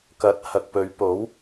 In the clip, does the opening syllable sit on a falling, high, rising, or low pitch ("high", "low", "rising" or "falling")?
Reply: rising